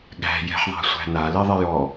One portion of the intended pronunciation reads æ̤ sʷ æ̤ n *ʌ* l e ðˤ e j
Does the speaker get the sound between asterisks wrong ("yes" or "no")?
yes